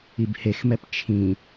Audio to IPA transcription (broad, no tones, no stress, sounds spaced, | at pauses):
i b h e x m ɛ p t͡ʃʰ ĩ